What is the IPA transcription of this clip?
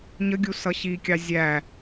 ɲ ə ɡʲ u s ʌ ɕ i kʲ ɑ zʲ æ

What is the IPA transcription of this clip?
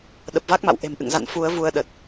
ɗ ə˨˩ p̚ v a˦˥ k̚ m a̰˧˨ w ʔ e̤˨˩ m ʔ ɨ̰˧˨ ŋ z a̰˧˨ n f u˨˦ ə̯ v u˧ ə̯ ɗ ə˨˩ t̚

